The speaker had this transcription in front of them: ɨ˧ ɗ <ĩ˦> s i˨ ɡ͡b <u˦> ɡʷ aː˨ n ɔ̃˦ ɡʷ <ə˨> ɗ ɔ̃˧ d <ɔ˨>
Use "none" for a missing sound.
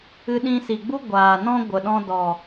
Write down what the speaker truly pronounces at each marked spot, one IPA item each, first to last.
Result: ĩ˧, u˦, ə˨, ɔ˨

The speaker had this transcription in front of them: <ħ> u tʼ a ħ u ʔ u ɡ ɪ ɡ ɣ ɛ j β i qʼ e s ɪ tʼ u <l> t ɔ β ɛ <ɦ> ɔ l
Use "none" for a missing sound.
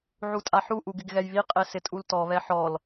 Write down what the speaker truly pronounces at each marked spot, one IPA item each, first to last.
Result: ʕ, l, ħ

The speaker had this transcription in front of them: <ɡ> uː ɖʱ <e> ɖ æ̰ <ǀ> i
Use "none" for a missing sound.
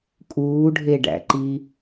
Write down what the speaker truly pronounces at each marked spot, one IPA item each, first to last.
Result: kʼ, e, ǃ

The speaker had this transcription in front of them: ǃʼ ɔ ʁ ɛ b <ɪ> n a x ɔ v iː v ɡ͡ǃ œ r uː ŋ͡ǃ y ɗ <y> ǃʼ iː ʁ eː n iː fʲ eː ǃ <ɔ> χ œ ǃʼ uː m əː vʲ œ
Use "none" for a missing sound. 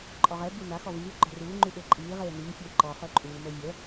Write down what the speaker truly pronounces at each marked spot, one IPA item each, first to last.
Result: i, ø, ɔ

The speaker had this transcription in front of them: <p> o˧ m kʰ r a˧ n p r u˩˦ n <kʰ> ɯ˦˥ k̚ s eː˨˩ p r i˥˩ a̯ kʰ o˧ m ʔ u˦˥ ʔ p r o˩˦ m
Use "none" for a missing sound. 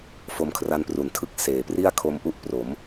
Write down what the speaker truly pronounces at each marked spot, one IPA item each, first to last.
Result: f, tʰ

